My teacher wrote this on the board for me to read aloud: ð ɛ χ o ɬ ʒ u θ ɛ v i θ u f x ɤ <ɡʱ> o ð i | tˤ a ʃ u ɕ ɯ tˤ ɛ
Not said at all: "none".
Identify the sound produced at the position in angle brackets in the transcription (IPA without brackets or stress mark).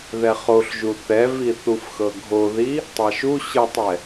ɡʱ